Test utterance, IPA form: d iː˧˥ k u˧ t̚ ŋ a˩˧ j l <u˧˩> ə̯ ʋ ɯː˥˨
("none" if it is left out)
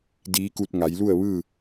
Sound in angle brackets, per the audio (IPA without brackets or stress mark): u˥˨